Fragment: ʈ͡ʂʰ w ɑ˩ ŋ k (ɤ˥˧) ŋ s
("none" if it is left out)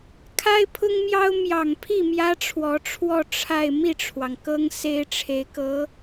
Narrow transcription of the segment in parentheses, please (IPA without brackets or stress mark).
ɤ˥